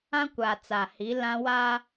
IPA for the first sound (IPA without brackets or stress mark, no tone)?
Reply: ã